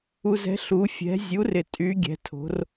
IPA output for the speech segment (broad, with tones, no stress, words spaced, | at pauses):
u˩zɛ̤˩˧ ɬu˩˧ fʲɛ̤˩˧zʲu˩˥ rɪ˩tʼy˩˧ɡʲɛ̤˩˧ tʰo̤˩˧r